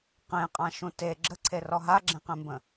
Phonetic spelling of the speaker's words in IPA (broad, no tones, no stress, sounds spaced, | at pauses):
q ẽ qʼ ã ʃ ũ t e ɡ͡ǁ ə ǀʰ e r ɔ ɦ a ɡ͡ǁ ẽ q ẽ m b ə̃